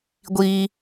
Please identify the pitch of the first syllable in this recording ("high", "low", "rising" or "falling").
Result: high